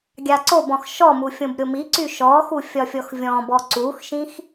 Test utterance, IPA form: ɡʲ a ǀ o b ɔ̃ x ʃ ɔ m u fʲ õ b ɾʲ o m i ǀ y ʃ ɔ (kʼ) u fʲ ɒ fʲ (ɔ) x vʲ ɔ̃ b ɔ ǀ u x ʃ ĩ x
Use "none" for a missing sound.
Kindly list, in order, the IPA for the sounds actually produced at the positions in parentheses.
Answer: x, ɔ

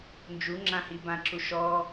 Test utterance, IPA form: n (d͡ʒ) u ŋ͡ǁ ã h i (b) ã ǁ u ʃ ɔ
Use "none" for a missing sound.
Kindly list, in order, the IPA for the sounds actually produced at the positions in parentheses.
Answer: d͡ʒ, b

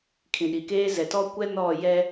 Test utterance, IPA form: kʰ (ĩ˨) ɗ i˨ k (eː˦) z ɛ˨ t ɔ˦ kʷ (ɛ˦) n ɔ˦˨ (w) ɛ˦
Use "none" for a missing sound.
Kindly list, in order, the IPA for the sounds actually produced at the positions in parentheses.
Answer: ĩ˨, eː˦, ɛ˦, j

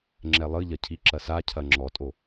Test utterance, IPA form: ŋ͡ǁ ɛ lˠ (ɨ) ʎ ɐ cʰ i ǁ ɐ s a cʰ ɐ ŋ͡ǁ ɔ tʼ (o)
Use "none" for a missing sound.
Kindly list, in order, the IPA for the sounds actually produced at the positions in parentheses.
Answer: ɨ, o

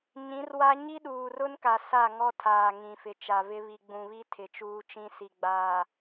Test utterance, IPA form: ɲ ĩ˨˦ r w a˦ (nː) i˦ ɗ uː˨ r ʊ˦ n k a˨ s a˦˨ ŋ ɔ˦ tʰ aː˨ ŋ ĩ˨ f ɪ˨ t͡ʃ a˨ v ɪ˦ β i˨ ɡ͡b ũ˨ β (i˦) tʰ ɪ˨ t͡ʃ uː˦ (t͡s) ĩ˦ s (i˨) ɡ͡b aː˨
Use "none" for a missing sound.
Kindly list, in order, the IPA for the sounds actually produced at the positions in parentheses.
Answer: ɲ, i˦, t͡ʃ, i˨

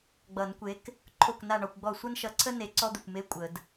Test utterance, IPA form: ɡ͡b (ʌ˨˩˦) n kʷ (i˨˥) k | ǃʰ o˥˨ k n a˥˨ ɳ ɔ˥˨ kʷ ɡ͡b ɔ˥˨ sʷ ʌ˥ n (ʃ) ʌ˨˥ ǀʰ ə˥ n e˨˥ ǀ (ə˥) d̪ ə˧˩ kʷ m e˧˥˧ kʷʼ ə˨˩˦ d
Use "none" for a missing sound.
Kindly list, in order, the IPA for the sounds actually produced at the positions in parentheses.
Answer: ʌ˨˩˦, e˨˥, ʃ, ɔ˥

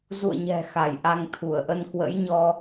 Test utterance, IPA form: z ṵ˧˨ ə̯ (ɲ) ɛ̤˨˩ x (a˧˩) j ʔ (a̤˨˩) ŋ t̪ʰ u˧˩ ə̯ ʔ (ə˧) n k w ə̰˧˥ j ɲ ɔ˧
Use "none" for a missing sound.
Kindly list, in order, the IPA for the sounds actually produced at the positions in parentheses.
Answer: ɲ, a˧˩, a˧, ə˧

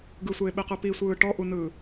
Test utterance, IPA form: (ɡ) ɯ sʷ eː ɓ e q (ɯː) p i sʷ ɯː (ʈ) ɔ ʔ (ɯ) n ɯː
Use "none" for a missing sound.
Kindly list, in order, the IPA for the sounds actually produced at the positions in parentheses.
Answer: ɡ, ɯ, ʈ, u

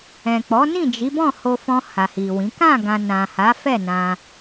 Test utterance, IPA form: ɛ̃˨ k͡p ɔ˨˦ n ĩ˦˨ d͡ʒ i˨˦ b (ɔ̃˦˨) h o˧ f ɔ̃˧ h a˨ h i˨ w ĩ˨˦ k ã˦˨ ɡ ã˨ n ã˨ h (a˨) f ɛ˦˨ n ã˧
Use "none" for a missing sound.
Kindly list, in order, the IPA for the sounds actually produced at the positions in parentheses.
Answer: ɔ̃˦˨, a˨˦

